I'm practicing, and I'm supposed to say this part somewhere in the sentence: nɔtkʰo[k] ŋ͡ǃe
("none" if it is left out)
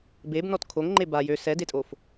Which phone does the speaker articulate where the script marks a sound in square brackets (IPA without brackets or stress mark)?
ŋ